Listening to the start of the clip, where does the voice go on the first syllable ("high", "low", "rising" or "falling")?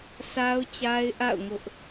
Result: high